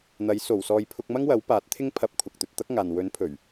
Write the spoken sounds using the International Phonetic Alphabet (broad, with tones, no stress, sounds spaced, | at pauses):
n̪ ɐ˨˥ j s o˨˩ w s ɔː˨ j pʰ ʊ˧ k̚ m ɐ˥ ŋ w ɐ˨˥ w p aː˨˥ t̚ t̪ʰ ɪ˥ ŋ pʰ ɐ˧ p̚ kʷʰ ɐ˨ k̚ t̪ ɵ˨ t̚ t̪ ɐ˥ k̚ ŋ aː˨ n w ɵ˨˥ n pʰ ɵ˨˩ ɥ